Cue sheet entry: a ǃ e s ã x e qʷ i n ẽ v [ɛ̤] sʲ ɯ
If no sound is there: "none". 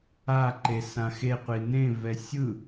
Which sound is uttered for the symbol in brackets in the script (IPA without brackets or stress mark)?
ɛ